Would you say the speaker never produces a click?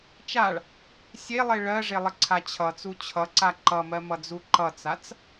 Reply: no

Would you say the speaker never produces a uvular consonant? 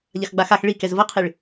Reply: no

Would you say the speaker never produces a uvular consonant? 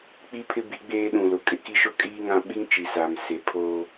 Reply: yes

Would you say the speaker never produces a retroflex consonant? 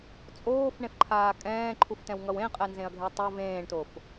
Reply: no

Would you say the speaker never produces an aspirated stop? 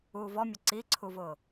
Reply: no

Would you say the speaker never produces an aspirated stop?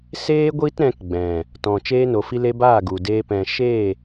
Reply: yes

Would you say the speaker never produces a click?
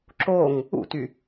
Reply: no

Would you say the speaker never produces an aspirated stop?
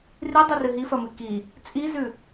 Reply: yes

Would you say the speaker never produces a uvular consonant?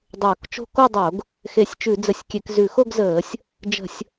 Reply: yes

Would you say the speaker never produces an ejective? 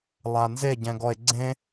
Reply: yes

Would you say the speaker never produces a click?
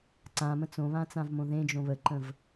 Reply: no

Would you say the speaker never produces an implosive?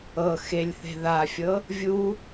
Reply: yes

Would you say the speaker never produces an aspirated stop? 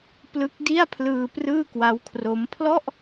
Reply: no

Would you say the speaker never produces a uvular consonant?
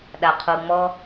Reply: no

